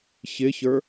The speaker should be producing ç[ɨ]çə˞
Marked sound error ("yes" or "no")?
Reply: yes